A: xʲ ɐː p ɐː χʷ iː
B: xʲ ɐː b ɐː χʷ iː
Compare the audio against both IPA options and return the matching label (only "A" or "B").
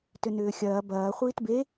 B